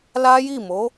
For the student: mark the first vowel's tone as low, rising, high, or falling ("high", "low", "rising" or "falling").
high